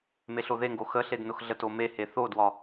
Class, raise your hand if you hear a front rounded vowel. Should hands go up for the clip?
no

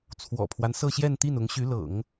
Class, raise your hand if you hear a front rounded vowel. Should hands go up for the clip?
yes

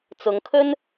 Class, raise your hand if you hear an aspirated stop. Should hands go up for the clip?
yes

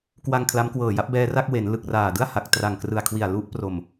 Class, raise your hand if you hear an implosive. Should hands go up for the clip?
no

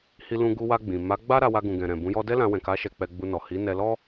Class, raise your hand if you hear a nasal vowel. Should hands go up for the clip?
yes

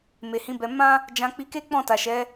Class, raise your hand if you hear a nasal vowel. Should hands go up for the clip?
yes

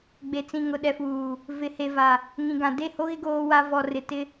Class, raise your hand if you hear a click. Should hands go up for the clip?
no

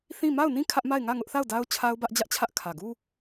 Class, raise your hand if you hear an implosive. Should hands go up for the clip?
no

